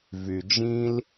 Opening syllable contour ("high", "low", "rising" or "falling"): low